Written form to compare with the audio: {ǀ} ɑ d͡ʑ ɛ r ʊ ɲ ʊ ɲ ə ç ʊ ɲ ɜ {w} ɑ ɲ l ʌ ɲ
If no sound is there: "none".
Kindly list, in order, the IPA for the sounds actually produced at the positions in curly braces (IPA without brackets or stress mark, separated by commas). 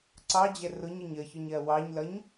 ǀ, w